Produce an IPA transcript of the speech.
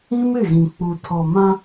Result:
ĩ˦mɪ˦˨ɣĩ˨ k͡pu˨tʰɔ˨mã˦

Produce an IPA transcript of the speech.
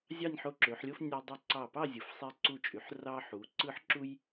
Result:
zʲɑ˥˧nʲħo˧ǁø˩˧ħlʲo˥f nʲɑ˧ dˤy˧˩ǀɑ˧˩pɑ˥˧ zʲɯ˩˧fsˤe˧ǀu˧˩t͡ʃʼy˩˧ħ rɑ˥ ħu˩˧ ǀɯ˥˧ħǁu˥j

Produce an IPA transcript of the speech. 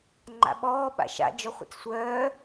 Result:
ŋ͡ǃa̰ɓɔː ɓa̰ʃa̰ d͡ʒɔχʷḭt͡ssʷœː

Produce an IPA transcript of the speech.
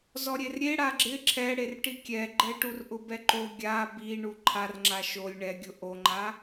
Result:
zɔɾʲerɾʲe ɽaɡ͡ǁɪ ǁʰɛ ɽerʈikʲɛɡ͡ǃɛ ʈurʔʊbɛǃo ɡʲa bi ɳuǃʰarŋ͡ǁa ʃolʲ ɳɛɡʲʊ ʔoŋ͡ǃa

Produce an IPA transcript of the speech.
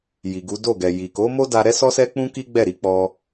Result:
ji˨ɡu˨˦ do˦˨ɡɛ˨ji˨ ko˨˦mo˦da˧ ɾɛ˦sɔ˦sɛ˦k͡pũ˦ ki˦ɡ͡bɛ˦˨ɾi˨˦k͡pɔ˧

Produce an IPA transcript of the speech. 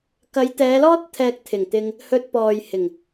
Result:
kɐ˨˧jt̪ɛː˨˧lɔː˥t̚ t̪ʰɛː˧k̚t̪ʰɪ˨˩ŋt̪ɪ˧ŋ | hɵ˧t̚ pɔː˨j hɪ˨˩ŋ

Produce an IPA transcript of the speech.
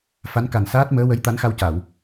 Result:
fa˧˥nka˨˩n saː˦˥t̚ məː˧˥wə˧˥j t̪a˧˥nxa˧wca˨˩˨w

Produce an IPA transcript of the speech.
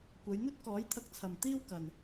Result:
kʷɐ˨˧jn̪ɵ˥t̚ kɔː˨˥jt̪ʰɐ˧k̚t͡sʰɐ˨m t̪iː˧w kɐ˨n

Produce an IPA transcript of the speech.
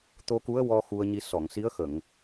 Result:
t̪o˧ku˧˥ə̯wɔ˧ xu˧ə̯ɲi˧ sɔ˨˩˨ŋsi˧˥ə̯xə˨˩˨ŋ

